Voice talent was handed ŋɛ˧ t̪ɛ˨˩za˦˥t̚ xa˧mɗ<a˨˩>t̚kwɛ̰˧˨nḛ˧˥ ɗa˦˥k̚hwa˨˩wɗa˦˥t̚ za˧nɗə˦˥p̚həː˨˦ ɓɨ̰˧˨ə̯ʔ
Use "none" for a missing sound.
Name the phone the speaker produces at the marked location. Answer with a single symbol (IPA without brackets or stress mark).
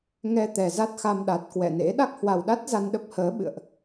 a˨˩